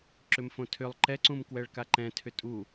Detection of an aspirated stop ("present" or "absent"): present